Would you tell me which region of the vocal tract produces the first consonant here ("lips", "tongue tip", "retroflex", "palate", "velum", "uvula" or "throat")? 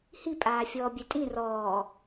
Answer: throat